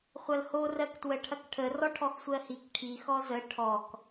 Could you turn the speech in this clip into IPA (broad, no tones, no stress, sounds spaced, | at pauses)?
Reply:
χʷ ɐ l h o r ɜ k t w ə ʈʰ ɐ k ʈʰ ə r ɔ ʈʰ ɔ x sʷ ɜ h i k ʈʰ i x ɔ z ə ʈʰ ɔ k